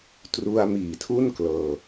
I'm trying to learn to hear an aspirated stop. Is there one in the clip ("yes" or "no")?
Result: yes